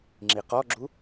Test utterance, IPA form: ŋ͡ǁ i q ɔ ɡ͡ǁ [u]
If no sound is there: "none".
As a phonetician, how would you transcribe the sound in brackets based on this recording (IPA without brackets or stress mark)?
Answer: u